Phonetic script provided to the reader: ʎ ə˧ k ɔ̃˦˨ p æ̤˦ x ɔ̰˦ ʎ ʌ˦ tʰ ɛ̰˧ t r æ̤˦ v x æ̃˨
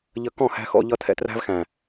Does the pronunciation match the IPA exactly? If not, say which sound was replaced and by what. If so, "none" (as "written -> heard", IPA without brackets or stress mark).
p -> h